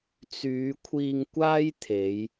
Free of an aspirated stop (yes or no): no